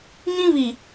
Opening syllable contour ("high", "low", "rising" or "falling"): high